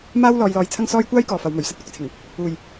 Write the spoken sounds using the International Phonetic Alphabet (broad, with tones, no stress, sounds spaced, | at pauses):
m aː˥ w l ɔː˧ j l ɔː˧ j t͡sʰ ɐ˥ ŋ s ɔː˥ j kʷ aː˥ j k ɔː˨ f ɐ˨˧ w m ɵ˨˩ ɥ s ɐ˥ t̚ kʷ ɪ˧ k̚ t͡sʰ ɪ˨˩ ŋ | uː˨ j